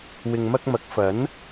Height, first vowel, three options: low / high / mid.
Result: high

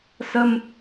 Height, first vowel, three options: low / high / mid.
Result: mid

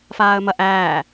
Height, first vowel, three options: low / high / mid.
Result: low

